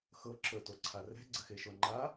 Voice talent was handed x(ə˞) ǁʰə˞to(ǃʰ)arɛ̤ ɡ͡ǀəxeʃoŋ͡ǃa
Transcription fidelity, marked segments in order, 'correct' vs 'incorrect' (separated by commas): incorrect, incorrect